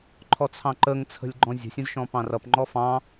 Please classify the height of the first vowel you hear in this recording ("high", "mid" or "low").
mid